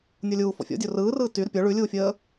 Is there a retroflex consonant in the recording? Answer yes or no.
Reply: yes